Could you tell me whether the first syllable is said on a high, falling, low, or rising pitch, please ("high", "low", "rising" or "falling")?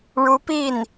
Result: rising